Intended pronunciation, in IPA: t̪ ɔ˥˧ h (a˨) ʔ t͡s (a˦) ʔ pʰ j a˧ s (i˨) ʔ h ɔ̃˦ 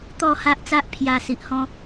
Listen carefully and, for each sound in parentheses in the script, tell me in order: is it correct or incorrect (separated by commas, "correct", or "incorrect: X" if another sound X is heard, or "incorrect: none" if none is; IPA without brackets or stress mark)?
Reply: incorrect: a˦, correct, correct